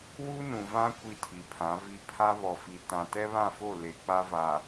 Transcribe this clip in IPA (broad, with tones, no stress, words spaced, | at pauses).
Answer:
wu˦nũ˨vã˦ kʷi˦tʰi˨pʰã˨˦vi˦ pʰa˦βɔ˨fi˨tã˨ tɛ˦βã˦˨fo˦˨ le˨k͡pa˦ va˨